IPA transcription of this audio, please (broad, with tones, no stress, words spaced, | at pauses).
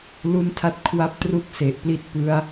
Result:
lu˦˥ntʰa˦˥t̚kʰwa˦˥p̚ tru˥˩k̚se˨˩ʔ pli˥˩t̚pɯ˦˥a̯